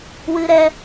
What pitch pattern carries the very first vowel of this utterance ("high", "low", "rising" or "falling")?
high